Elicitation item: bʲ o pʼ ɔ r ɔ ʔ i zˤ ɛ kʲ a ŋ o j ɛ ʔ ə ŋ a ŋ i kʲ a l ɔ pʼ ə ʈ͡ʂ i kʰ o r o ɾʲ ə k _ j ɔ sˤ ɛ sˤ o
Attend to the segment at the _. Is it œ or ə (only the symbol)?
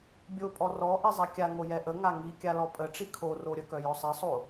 œ